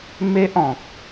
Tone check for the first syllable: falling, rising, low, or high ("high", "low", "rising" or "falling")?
high